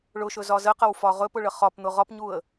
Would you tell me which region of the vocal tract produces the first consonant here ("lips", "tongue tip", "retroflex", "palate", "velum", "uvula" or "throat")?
retroflex